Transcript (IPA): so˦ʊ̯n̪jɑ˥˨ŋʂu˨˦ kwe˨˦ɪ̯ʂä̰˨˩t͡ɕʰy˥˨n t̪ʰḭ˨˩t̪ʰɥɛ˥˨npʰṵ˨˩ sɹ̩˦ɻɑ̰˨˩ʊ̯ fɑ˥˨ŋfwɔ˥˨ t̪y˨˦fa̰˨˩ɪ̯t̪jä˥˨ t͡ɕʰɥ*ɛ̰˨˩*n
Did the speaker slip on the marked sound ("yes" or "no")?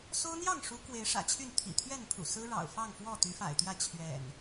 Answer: no